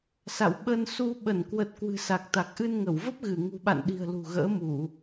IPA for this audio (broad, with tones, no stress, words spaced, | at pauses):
sa̰˧˨w ɓə˧nsu˧ ɓə˧˩nkwə˨˩t̚ kwɨ̤˨˩sa˨˩k̚t̪a˨˩k̚ ʔɨ˧nŋə˧˩wvə˦˥p̚ɣɨ˧˩ ŋṳ˨˩ɓa̰˧˨nɗi̤˨˩ə̯ lṳ˨˩ɣə̰ː˧˥mu˧˩˨